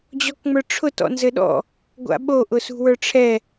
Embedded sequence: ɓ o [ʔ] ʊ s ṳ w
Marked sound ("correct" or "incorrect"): correct